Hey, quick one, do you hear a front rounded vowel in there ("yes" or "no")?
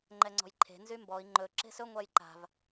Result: yes